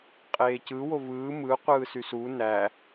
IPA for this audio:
qʼ eː c ɯ w o v ɯː m ɯ qʷ ɯː s y s u n æ

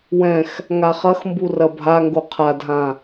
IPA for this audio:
w ɛ̃ x | ŋ a χ ɐ x m b u r ɐ bʱ a ŋ ɡ o qʰ a dʱ ã

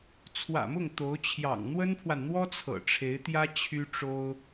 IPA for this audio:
t͡sʰ w ä̰˨˩ m ʊ˥˩ ŋ t̪ o˧˥ ʊ̯ t͡ɕʰ j ɑ̰˨˩ ŋ n̪ w ə˥ n pʰ w a˨ n n̪ w ɔ˥ t͡sʰ ɤ̰˨˩ ʈ͡ʂʰ e˧˥ ɪ̯ t̪ j ä˥ t͡ɕʰ y˥ ʈ͡ʂ o˥ ʊ̯

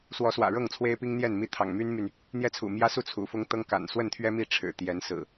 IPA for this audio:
s w ɔ˨˦ s w ä̰˨˩ ɻ ɤ˥˨ ŋ t͡sʰ w e˦ ɪ̯ p i˦ ŋ n̪ j ɛ˥˨ n m i˦ t̪ʰ ɑ̰˨˩ ŋ m y˦ n m y˨ n | n̪ j ɛ˦ t͡sʰ ṵ˨˩ m j ä˦ s u˥˨ t͡sʰ ṵ˨˩ f ʊ˦ ŋ t̪ ɤ˦ ŋ k a̰˨˩ n s w ə˥˨ n t̪ʰ ɥ ɛ˦ m i˥˨ ʈ͡ʂʰ ɻ̩˨˩ t̪ j ɛ˨˦ n s ɹ̩˨˩

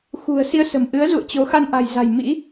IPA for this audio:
x ṳ˨˩ ə̯ s i˧ ə̯ s ə̤˨˩ m ʔ ɨ˨˦ ə̯ z ṵ˧˨ ə̯ t͡ɕ o˨˦ x a˧ n ʔ a̤˨˩ j z a̤˨˩ j m ḭ˧˥

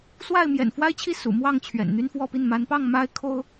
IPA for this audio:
s w a˥˨ ɪ̯ m j ɛ̰˨˩ n f w a˦ ɪ̯ t͡ɕʰ i˥˨ s ṵ˨˩ m w ɑ˥˨ ŋ t͡ɕʰ ɥ ɛ̰˨˩ n n̪ y˦ n f w ɔ˥˨ p i˥˨ n m a˨˦ n p ɑ˥˨ ŋ m a˦ ɪ̯ kʰ o˦ ʊ̯

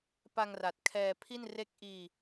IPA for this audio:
p a˧ ŋ r a˨˩ t̚ kʰ ɛː˧ pʰ i˥˩ n r e˥˩ k̚ ʔ iː˧

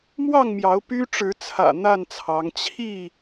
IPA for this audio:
m w ɑ˥˨ ŋ m j ɑ˨˦ ʊ̯ p y˦ ʈ͡ʂ ɻ̩˨˦ t͡sʰ ä̰˨˩ n̪ a˥˨ n t͡sʰ ɑ˨˦ ŋ t͡ɕʰ i˥˨

